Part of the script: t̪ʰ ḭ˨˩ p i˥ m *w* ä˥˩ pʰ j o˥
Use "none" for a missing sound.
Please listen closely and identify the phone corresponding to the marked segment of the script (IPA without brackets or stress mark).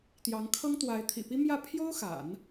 j